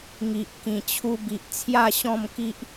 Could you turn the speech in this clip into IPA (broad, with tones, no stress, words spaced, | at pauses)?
ŋi˨ʔ kĩ˨˩t͡ɕʰu˧bi˨ʔ t͡sʰja˥˧ɕɔ̃˥˧mki˦ʔ